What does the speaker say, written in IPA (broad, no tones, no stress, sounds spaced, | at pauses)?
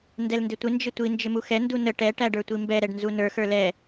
n d ɛ l n d ɪ tʷ ɪ n d͡ʒ ɪ tʷ i n d͡ʒ ɪ m u x ɛ n d u n ə ʈ ɛ ʈ æ ɖ ə˞ tʷ i m b ɛ ɾ ɛ ɖ n z u n ə˞ x ə˞ l ɛ